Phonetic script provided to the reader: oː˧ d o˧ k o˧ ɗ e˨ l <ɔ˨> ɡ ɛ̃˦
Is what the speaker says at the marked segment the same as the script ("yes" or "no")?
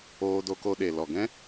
yes